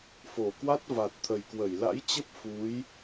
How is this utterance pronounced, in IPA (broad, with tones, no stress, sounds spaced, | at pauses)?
f o˧˩ k w a˦˥ t̚ v a˨˩ t̚ t̪ʰ ə˨˩ j k w ə˧˩ j l a̰˧˥ j t͡ɕ ə˦˥ p̚ f u˨˦ j